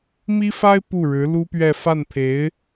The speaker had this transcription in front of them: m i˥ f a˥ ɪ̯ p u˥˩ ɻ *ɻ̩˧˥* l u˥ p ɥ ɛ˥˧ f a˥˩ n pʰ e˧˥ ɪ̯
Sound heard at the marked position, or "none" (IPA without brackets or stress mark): ɻ̩˧˥